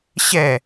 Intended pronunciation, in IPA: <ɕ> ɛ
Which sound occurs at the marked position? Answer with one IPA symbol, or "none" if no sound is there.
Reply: ɕ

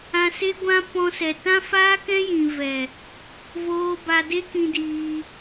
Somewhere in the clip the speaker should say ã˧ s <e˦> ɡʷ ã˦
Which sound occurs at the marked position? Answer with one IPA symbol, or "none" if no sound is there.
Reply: e˦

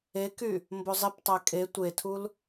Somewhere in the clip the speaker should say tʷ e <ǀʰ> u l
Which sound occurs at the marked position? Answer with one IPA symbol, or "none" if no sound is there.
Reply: tʰ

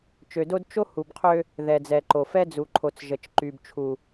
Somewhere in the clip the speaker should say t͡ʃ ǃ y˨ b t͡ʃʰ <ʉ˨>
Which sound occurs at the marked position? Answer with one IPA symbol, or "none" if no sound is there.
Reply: u˨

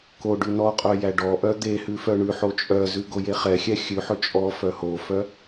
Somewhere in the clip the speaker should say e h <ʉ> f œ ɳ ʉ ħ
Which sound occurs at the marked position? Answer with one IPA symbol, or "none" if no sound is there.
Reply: ʉ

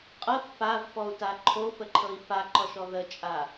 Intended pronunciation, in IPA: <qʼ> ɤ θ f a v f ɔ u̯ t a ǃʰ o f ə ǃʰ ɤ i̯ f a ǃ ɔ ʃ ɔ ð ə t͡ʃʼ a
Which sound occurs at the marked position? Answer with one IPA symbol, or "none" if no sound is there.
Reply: qʼ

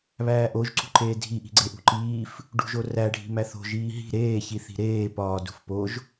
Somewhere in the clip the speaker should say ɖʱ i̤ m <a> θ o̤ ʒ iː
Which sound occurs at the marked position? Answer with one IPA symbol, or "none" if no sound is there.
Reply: æ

